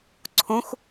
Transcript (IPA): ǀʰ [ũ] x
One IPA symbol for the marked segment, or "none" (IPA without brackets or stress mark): ũ